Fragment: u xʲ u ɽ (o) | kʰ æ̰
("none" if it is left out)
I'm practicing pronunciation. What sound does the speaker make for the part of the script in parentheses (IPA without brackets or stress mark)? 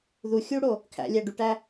o